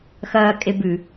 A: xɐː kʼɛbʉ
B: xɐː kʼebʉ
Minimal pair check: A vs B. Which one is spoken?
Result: B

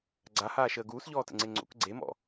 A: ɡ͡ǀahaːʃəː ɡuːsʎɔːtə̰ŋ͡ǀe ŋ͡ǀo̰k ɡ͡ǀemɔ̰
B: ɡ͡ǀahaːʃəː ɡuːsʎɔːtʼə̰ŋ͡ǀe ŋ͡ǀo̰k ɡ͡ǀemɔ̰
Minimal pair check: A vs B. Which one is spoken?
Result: A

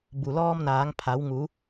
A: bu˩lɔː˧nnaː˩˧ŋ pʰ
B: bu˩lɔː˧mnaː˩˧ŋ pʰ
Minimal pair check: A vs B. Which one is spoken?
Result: B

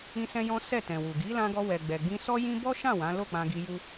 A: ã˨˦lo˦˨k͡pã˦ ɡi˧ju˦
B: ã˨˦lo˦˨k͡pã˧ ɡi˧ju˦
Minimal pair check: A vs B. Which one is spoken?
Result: B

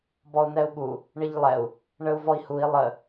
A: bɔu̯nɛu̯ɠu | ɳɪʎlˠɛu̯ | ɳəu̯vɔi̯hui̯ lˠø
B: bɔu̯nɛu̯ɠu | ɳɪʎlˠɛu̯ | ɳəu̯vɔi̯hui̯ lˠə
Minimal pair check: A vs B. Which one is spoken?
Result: B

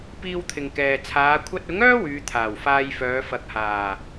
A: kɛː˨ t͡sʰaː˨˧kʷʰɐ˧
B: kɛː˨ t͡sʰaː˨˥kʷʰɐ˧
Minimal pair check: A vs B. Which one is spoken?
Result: A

